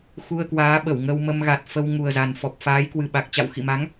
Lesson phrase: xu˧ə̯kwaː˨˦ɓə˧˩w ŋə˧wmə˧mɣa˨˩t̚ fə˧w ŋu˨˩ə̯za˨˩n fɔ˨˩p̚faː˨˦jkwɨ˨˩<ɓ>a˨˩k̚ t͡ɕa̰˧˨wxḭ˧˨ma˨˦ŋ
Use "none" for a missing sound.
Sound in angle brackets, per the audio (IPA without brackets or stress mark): ɓ